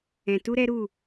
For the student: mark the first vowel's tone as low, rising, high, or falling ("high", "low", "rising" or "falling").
low